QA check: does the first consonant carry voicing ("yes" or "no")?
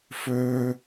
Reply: no